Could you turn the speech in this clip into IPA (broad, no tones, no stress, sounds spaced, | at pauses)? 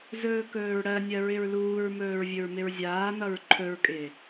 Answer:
z ɵː k ɵː ɹ ɽ ɜ nʲ ɜ ɹ ɪ ɹ l uː ɹ m ɵː ɹ vʲ ɵ ɹ m ɪ ɹ zʲ aː n ʌ ɹ ǃʰ ɵ ɹ kʼ ɪː